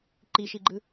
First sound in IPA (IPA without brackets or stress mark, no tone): ǃ